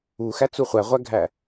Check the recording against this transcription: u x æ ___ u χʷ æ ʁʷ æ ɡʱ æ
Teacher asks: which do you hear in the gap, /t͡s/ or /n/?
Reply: t͡s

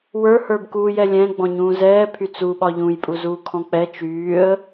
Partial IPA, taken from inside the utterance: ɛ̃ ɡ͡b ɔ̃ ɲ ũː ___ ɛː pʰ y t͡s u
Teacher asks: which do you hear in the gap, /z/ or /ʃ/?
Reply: z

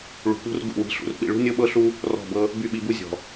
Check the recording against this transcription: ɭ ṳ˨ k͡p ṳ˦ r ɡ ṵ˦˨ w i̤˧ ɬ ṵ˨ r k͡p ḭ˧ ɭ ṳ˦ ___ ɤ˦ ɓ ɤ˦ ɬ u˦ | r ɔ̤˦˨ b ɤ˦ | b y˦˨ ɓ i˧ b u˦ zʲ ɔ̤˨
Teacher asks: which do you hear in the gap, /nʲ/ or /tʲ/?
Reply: nʲ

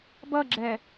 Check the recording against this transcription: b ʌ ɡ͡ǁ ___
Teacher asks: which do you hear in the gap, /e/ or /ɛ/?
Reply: ɛ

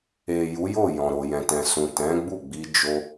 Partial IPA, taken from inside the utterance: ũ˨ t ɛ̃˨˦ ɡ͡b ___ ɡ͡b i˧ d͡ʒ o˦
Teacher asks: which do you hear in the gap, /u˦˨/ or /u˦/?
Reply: u˦˨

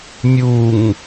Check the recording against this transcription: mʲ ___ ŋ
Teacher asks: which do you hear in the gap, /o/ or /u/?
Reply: u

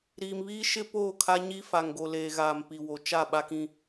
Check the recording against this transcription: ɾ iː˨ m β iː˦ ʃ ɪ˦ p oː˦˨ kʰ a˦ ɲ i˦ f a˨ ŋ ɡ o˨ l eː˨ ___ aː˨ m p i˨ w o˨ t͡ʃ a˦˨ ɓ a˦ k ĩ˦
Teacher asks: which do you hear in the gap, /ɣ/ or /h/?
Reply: ɣ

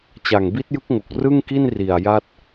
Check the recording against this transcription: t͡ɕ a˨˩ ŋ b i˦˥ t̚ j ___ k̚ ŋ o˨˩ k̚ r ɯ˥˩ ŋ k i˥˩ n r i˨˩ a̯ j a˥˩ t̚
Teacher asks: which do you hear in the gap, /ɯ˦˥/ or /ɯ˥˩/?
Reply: ɯ˦˥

